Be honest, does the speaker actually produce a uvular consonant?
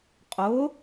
yes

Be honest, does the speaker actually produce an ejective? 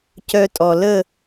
yes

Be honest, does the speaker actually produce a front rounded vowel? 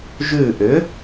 yes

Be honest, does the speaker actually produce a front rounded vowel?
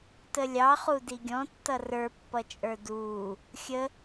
no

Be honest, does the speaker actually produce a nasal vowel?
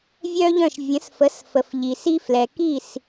yes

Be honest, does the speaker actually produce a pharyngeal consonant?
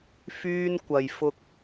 no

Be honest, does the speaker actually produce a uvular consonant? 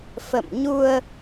no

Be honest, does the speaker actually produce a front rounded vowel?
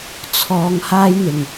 no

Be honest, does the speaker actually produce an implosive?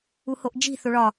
no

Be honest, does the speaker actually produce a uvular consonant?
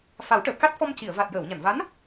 no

